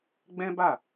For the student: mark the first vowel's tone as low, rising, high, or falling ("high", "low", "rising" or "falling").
high